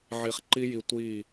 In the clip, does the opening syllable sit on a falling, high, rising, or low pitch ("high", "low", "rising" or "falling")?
low